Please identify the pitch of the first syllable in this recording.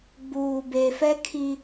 low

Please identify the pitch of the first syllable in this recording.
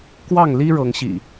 falling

